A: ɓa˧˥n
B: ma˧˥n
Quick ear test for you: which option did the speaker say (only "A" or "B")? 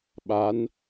A